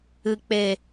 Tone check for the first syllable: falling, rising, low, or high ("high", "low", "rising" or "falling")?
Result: low